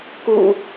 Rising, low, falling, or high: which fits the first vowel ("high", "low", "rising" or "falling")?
low